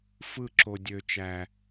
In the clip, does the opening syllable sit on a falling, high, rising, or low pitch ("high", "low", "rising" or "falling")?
falling